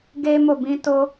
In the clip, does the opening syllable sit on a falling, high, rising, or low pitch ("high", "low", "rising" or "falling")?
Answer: high